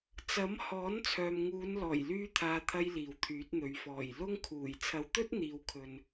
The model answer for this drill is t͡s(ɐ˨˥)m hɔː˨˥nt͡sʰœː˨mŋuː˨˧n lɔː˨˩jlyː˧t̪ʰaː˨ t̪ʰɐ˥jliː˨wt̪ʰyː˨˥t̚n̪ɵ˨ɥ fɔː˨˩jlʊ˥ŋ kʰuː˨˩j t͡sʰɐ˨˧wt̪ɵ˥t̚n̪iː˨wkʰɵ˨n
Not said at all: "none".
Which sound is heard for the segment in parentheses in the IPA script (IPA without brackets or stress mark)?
ɐ˨˥